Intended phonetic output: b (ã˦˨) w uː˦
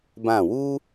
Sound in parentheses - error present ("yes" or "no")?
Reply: no